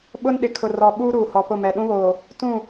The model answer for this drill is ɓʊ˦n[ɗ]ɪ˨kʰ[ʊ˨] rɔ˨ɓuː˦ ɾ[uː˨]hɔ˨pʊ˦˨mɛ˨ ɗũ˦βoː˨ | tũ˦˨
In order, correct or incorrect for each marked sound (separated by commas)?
correct, correct, correct